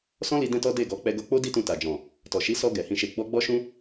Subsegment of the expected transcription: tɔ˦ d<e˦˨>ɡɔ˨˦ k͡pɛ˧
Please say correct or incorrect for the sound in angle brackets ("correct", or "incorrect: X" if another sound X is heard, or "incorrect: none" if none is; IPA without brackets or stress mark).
correct